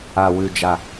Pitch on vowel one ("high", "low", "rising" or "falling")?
low